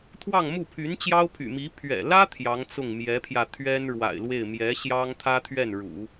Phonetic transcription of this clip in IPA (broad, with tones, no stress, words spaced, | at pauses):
t̪ʰwɑ˥˧ŋmu˥˩pʰy˧˥nt͡ɕjɑ˥ʊ̯ pʰy̰˨˩mi˧˥ pʰɥɛ̰˨˩lä˥ t̪ʰjɑ˧˥ŋt͡sʊ˥˩ŋmjɛ˧˥pʰjä˧ t̪ʰɥɛ˥nɻwa̰˨˩ɪ̯lwe˥˩ɪ̯ mjɛ˧˥ɕjɑ˥ŋ t̪ʰä˥t̪ʰɥɛ˥˩nɻṵ˨˩˦